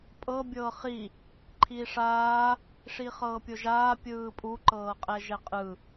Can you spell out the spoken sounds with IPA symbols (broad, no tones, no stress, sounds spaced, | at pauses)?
pʼ ɤ bʲ ɤː χ i | ǃʰ i ʂ aː | ʂ i χ ɤː pʲ o ʒ aː pʲ ɯː pʼ u ǃ ɤː qʼ ɛ ʒ ɛ qʼ ɯ